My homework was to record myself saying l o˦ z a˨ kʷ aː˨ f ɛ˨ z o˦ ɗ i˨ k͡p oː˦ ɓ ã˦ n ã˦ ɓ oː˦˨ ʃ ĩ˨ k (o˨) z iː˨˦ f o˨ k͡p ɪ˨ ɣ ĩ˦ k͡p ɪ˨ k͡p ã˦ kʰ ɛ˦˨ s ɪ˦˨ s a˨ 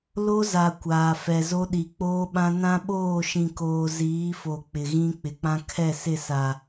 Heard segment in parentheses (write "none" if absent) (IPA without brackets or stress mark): oː˨